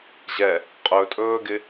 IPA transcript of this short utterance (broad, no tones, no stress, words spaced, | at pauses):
ʑɛ | qʼɵtʼɵːɡɪ